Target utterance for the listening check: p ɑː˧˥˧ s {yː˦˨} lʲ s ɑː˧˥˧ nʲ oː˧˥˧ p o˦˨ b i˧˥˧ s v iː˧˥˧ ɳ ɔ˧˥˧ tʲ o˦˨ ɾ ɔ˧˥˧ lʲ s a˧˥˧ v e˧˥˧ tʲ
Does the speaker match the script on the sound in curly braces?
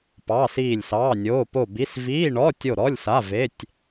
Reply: no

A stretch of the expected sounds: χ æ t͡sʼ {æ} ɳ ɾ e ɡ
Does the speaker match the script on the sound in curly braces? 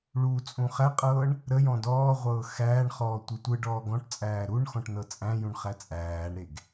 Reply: no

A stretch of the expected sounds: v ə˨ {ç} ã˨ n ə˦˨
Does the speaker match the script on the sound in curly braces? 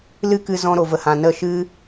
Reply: no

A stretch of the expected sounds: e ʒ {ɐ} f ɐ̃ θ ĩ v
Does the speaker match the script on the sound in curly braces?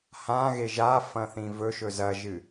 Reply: no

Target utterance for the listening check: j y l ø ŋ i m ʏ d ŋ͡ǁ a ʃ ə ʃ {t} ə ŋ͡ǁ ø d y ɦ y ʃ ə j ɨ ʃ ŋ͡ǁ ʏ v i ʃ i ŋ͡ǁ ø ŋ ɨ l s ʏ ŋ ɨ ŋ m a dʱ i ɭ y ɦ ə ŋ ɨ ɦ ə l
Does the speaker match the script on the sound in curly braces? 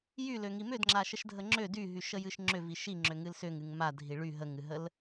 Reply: no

